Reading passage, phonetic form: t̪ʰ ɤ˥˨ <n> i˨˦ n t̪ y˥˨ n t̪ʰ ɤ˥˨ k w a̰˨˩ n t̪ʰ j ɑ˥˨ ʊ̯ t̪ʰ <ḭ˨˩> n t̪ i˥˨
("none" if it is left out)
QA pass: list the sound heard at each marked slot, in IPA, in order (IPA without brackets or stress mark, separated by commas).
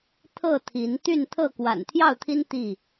t̪ʰ, i˦